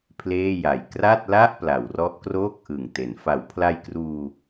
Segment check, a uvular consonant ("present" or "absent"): absent